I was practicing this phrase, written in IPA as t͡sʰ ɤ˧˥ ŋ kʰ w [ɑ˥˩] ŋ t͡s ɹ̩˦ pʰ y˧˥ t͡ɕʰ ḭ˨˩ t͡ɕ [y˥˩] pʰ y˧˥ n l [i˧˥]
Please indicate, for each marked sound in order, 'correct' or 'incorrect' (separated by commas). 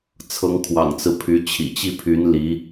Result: incorrect, incorrect, correct